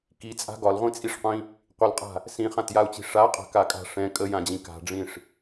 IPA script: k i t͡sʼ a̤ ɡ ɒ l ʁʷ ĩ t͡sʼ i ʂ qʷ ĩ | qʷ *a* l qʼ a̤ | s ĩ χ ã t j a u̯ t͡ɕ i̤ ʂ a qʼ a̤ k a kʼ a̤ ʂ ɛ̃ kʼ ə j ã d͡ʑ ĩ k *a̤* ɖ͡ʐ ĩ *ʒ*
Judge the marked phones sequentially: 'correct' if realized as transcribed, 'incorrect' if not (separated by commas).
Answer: incorrect, correct, incorrect